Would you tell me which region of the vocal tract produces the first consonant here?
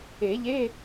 palate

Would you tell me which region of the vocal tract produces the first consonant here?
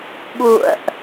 lips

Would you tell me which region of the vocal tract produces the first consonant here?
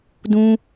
tongue tip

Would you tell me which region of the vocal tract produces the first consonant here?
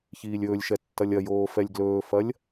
palate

